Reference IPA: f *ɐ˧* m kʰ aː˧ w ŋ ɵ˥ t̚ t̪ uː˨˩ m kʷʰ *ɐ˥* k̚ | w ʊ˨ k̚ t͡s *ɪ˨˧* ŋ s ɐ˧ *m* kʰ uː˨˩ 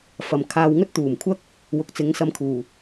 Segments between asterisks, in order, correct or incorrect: incorrect, correct, correct, correct

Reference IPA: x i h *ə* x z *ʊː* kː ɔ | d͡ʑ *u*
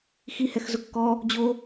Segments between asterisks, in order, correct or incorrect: incorrect, incorrect, incorrect

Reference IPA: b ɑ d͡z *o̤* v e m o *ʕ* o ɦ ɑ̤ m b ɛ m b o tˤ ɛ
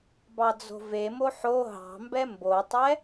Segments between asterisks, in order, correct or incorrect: correct, incorrect

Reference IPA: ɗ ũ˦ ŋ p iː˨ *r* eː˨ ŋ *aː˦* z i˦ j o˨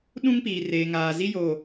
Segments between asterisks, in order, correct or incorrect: correct, incorrect

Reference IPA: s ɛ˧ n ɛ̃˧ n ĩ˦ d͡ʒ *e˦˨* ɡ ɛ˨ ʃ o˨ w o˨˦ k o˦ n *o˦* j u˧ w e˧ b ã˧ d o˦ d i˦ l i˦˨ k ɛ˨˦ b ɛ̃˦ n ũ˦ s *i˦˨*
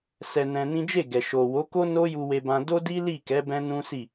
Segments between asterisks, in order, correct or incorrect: correct, correct, correct

